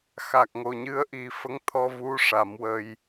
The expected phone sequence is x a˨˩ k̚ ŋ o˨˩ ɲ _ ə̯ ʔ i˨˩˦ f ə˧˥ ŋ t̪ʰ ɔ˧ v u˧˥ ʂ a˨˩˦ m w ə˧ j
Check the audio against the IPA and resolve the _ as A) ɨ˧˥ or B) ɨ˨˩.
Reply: A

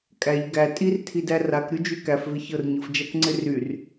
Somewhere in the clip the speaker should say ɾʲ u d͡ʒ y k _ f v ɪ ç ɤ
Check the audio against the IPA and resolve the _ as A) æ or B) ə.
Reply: A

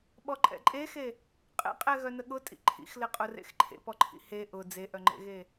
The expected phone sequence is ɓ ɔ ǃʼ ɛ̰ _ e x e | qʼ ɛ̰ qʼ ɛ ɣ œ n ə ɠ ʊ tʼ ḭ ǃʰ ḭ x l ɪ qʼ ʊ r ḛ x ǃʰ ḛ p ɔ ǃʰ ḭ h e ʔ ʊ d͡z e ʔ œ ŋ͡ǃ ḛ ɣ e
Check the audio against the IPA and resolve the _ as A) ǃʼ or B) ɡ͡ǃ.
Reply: A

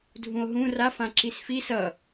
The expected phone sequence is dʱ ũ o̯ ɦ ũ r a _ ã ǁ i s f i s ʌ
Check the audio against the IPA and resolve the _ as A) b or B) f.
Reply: B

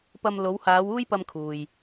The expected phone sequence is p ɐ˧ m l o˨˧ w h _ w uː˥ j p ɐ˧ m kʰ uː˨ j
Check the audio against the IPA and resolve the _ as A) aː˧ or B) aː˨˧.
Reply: B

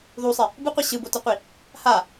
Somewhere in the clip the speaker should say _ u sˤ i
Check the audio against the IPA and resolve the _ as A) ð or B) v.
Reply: A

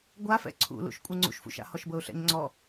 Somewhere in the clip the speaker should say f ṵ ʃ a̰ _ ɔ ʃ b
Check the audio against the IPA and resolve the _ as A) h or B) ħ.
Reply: A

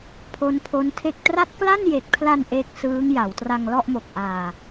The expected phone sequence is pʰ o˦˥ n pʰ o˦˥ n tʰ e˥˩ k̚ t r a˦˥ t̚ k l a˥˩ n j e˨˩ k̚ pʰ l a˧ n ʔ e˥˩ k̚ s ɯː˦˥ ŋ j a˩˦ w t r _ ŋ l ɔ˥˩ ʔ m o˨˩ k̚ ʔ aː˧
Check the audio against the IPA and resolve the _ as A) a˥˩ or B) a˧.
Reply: B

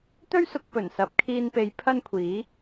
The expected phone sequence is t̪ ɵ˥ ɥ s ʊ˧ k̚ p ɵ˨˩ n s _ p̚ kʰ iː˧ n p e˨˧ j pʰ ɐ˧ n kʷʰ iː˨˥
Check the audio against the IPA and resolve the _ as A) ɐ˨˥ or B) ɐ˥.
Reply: A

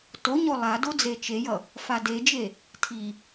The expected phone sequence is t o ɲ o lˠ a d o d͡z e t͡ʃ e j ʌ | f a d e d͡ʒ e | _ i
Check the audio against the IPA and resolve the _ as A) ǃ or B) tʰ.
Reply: B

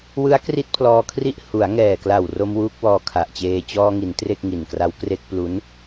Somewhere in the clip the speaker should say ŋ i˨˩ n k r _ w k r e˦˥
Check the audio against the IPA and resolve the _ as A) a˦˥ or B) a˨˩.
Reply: A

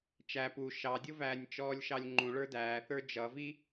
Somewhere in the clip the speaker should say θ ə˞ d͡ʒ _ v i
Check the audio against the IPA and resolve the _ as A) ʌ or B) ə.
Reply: A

